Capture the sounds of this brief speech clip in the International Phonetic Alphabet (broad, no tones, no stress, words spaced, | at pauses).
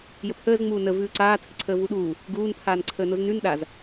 jəpʰəːz ŋ͡muːnə vʉːǀaː tʰəǀʰəːvuɗuː | ɡuːn pʰaːnǀʰəːnoznʉn ɗaz